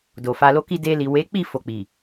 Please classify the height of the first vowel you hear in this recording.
mid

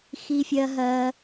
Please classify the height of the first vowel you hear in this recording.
high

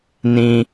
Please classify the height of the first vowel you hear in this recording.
high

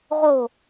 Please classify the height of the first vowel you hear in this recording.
mid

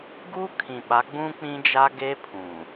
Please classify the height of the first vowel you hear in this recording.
high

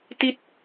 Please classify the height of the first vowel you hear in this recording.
high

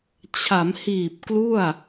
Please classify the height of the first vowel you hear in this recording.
low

